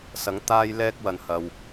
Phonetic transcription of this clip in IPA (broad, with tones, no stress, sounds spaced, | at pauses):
s ɐ˨˥ ŋ t̪ aː˥ j l ɛː˥ k̚ w ɐ˨ n h ɐ˨ w